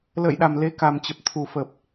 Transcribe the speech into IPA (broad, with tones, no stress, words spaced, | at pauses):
lə̰ː˧˨jɗa˨˩m le˨˦ka˨˩mt͡ɕə˨˩p̚ t̪ʰu˨˩fə˨˩p̚